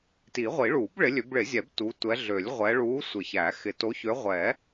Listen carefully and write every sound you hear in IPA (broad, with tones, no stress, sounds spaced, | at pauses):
t i˨˩˦ ʁʷ i˨˩˦ ɭ u˨˩˦ b ɭ ɪ˨˦ lʲ ø˨˦ b ɭ ɪ˨˩˦ zʲ ɛ˨˩˦ b t u˨˦ tʷ ɛ˨˦ ɮ ø˨˩˦ lʲ ʁʷ ɛ˨˦ ɭ u˨˦ sʷ ɪ˨˩˦ ç æ˨˩˦ x ɪ˨˦ t o˨˦ ç ø˨˦ ʁʷ ɛ˨˩˦